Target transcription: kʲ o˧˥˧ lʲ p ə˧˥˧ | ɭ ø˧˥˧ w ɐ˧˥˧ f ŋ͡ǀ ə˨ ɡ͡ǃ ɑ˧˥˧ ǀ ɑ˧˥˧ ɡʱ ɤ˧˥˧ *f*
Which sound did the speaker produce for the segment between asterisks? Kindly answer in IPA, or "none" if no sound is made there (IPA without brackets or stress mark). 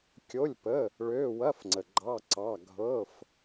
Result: f